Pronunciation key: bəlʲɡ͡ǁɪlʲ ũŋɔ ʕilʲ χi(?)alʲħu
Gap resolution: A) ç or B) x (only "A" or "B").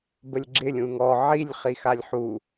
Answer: B